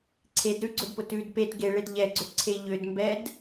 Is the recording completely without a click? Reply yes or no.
no